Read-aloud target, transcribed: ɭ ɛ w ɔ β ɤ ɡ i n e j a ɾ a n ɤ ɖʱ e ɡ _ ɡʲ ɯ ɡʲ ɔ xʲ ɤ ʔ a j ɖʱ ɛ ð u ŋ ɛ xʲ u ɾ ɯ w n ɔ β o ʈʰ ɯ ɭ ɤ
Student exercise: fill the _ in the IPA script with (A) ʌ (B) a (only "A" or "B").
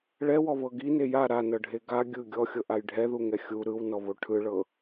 B